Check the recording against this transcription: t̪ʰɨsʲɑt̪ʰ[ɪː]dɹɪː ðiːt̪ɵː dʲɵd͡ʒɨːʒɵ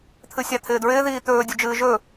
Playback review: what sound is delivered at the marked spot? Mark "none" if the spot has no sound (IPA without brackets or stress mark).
ɪː